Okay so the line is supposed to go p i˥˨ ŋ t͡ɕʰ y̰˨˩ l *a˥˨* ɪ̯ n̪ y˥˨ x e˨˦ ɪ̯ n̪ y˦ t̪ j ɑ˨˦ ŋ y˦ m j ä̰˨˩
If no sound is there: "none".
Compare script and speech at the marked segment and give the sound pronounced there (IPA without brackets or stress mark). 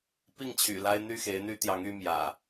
a˦